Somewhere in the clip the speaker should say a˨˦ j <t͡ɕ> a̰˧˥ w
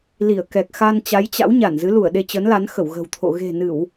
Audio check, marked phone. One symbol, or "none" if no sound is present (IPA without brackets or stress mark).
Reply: t͡ɕ